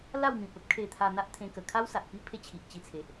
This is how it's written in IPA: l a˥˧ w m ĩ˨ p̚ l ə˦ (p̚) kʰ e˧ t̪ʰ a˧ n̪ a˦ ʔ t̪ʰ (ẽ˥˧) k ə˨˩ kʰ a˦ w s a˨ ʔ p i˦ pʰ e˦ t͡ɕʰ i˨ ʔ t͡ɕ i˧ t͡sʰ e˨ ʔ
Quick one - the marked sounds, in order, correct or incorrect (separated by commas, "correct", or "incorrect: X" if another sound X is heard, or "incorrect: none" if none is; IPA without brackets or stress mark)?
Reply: correct, incorrect: ẽ˧